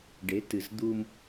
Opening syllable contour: rising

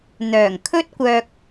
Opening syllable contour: low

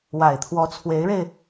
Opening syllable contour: low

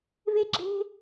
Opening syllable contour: high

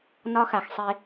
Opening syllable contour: high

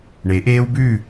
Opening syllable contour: rising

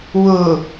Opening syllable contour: low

